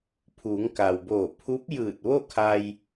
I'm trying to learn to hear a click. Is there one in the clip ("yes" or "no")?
no